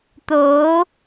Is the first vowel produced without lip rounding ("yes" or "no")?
no